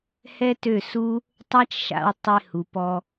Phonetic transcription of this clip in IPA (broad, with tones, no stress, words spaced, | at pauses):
hɛ˦tø˦˨su˦ | tˤa˦t͡ʃʃa̰˧w tˤe˧hu˨pɔ˧